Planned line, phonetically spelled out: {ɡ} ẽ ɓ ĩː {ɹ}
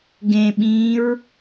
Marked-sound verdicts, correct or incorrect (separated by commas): correct, correct